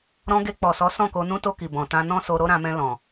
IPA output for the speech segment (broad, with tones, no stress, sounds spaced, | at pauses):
ɾ ɔ̃˧ ɡ e˧ k͡p ɔ˨ s ɔ˨˦ s ɔ̃˦˨ k o˧ n ũ˦ t o˧ k i˨ b ɔ̃˨ t ã˧ n ɔ̃˦ s o˧ ɾ o˦ ɾ ã˧ m ɛ̃˧ l ɔ̃˨